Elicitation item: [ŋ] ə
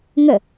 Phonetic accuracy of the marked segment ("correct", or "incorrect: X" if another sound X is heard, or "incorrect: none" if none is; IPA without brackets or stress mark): correct